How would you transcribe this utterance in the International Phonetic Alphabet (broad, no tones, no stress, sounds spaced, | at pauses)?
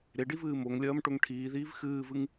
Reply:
ɾ e ɖ i v ɨː m o ŋ lʲ ɐː m ʈ o ŋ ʈʰ iː ð iː v x ɨː v ɨ ŋ